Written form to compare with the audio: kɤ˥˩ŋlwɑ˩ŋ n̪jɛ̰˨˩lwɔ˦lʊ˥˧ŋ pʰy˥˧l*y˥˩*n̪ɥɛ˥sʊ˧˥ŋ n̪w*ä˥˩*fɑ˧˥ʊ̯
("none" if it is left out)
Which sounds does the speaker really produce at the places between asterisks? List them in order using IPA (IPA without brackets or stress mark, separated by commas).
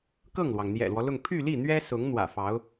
i˥˩, ä̰˨˩